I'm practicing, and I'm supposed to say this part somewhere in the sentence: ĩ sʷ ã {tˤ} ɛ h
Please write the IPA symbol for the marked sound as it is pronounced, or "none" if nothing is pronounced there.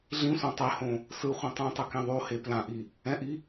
tˤ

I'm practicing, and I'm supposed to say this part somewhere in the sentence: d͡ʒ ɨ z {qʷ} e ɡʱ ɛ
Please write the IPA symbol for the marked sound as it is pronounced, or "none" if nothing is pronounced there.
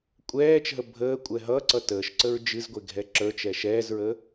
ɡʷ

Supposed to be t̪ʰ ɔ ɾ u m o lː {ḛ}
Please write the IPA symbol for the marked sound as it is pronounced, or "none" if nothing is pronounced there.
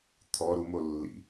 ḭ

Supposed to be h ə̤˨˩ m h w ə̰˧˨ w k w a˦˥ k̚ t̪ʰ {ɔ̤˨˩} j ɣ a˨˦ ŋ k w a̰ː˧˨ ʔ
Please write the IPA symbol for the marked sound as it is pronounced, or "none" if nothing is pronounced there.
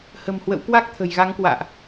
ə̤˨˩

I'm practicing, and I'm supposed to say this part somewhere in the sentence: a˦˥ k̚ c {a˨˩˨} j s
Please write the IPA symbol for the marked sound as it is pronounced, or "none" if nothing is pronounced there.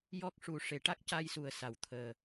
a˧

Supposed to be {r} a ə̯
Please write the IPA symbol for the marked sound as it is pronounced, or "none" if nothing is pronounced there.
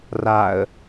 r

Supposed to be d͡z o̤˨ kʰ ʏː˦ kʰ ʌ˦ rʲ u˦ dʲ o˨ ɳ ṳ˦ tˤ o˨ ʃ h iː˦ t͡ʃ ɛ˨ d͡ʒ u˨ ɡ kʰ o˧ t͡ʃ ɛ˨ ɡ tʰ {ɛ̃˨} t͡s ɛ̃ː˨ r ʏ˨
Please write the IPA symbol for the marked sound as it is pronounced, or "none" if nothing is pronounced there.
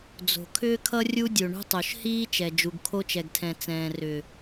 ɛ̃˨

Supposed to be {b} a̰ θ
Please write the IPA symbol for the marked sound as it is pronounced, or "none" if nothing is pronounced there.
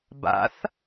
b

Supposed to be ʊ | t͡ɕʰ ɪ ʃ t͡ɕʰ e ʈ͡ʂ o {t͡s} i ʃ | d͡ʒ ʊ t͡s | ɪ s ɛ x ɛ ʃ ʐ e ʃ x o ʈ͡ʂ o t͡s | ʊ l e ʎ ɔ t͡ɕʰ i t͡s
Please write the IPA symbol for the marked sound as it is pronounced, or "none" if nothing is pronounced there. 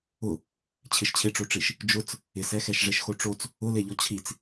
ʈ͡ʂ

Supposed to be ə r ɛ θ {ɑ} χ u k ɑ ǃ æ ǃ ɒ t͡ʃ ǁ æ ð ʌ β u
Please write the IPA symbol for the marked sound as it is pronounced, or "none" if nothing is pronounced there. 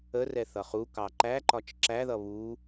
ʌ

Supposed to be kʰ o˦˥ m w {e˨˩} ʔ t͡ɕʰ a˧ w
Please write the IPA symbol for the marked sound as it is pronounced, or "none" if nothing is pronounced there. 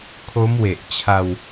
e˨˩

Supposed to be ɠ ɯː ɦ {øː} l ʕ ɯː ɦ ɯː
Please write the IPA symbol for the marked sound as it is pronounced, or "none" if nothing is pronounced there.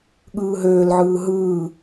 øː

